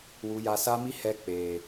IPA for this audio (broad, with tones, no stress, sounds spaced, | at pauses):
w u˨ j a˨ s a˧ m i˧ h ɛ˧ k͡p eː˨